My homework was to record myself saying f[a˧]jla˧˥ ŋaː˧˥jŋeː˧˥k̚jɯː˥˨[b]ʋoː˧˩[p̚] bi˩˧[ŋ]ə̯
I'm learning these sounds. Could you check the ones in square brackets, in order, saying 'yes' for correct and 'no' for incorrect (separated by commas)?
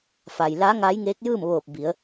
no, no, yes, no